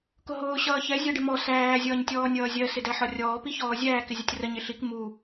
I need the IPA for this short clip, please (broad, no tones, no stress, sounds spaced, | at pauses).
k ʊ ɦ ʊː ɕ ʌː ç ɛ zʲ ɜ ɖ ɪ m ɔ s æː zʲ ʌː ɲ tʲ ɔː nʲ ʌː zʲ ɜ s ɪ d æ ħ ɒ rʲ ɔː p i ç ɔː zʲ æː k ɪ zʲ ʌ tʲ r ə ɲ ɪ ɬ i k m u